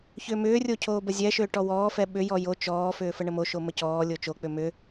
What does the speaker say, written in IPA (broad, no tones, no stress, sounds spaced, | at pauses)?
ç ʏː m ʏː rʲ o cʰ oː b ə zʲ ɛ ʃ ʏː ʈ ɔ w ɔː f ɛ ɓ ʏ j ɔ j o t͡ʃ ɔː f ʏː f ə ɳ ə m o ʃ o m ə c ɔː lʲ o t͡ʃ o k͡p ʏ m ʏ